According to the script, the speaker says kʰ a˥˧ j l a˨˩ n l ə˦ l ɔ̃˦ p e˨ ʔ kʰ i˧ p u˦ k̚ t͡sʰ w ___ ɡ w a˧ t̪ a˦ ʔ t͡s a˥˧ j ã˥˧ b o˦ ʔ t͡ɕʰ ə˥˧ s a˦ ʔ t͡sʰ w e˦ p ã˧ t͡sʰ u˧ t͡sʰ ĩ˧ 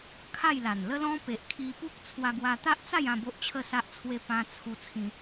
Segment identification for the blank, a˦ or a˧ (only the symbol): a˧